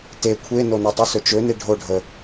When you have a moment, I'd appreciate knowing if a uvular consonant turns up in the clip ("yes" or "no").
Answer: no